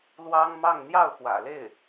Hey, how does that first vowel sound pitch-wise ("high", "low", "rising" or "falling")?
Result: high